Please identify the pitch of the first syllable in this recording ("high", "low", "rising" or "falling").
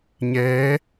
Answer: rising